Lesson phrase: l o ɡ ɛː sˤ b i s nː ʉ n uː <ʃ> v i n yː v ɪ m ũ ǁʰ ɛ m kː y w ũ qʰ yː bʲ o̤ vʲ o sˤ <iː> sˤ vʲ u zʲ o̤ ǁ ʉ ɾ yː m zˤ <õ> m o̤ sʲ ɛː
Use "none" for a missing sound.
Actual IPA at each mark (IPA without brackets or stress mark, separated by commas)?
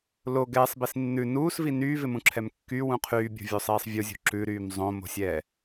s, iː, õ